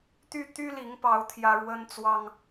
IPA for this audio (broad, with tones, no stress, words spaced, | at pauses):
t̪y˥˩ t̪y˥li˧˥ŋpɑ˧˥ʊ̯ t̪ʰjä˥ ɻwə˥nt͡swɑ˥ŋ